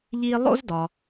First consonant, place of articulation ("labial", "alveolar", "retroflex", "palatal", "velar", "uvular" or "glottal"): palatal